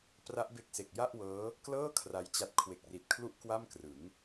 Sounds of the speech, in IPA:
p r a˦˥ ʔ b e˦˥ k̚ s e˨˩ k̚ j a˥˩ ʔ w ɤː˦˥ | k l ɤː˥˩ kʰ r a˦˥ j t͡ɕ a˦˥ t̚ kʰ w e˨˩ k̚ r i˨˩ t̚ kʰ l u˥˩ ʔ k w a˥˩ m k r ɯ˩˦ ŋ

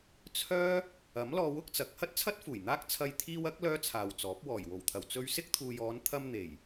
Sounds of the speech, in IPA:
t͡sʰ œː˥ | ɐ˨˥ m l ɔː˧ w ʊ˥ k̚ t͡s ɐ˨˥ k̚ h ɐ˥ t̚ t͡sʰ ɐ˥ t̚ f uː˨˩ j n̪ aː˥ k̚ t͡sʰ ɐ˧ j t̪ʰ iː˧ w ɐ˨˥ k̚ l œː˥ t͡sʰ aː˨ w t͡s ɔː˨˥ p̚ w ɔː˨˩ j w o˨˩ w t̪ʰ ɐ˨˩ w t͡s ɵ˧ ɥ s ɪ˥ k̚ t̪ʰ uː˨ j ɔː˨˧ n t̪ʰ ɐ˧ m n̪ e˨˩ j

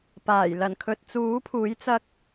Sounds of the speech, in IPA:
p aː˨˩ j l ɐ˨˩ n kʰ ɵ˨ t̚ t͡s uː˨˥ pʰ uː˨˥ j t͡s ɐ˧ k̚

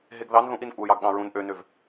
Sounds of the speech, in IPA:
ɦ e ɡ ð ɑ n ð ũ ʔ i n kʷʼ æ j ɑ ɡ ɠ ɑ̃ ɹ ũ n ʔ ø n ø v

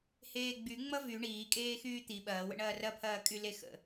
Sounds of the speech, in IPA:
h eː ɡ͡b y ŋ͡m ʌ v y ɳ iː kʼ eː x yː t̪ i ɓ ɐː w ə̰ ɳ ɐː r ɐ pʰ ɐː kʼ y l e x ə̰

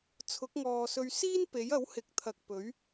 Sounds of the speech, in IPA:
t͡sʰ ʊ˨˥ k̚ ŋ ɔː˨ s ɵ˧ ɥ s iː˥ n p e˨˥ j ɐ˨˥ w h ɪ˨ k̚ t̪ʰ ɐ˨ k̚ p ɵ˨˥ ɥ

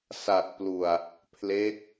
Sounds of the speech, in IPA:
s a˨˩ t̚ p l u˨˩ a̯ | pʰ l e˦˥ k̚

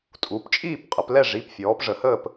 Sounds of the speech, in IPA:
tʼ u˩˧ p t͡ʃʼ iː˦˨ p qʼ ə˩˧ p l ɛ˦˨ ʐ i˩˧˩ p fʲ ɔː˩˧ p ʐ ə˩˧ h əː˦˨ p

